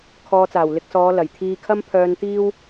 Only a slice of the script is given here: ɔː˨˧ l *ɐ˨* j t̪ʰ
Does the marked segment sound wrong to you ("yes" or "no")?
yes